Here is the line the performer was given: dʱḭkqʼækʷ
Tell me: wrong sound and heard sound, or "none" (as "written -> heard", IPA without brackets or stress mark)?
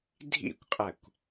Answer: k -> kʷ